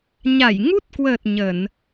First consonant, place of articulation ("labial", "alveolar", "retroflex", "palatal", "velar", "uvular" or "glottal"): palatal